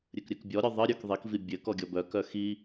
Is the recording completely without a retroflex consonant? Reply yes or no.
yes